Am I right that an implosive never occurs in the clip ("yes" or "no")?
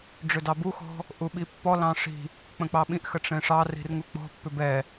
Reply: no